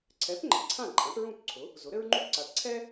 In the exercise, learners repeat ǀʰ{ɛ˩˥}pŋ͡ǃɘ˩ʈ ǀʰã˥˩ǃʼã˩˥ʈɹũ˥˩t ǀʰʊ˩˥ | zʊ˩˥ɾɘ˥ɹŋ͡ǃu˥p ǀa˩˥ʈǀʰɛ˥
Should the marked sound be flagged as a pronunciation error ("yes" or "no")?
no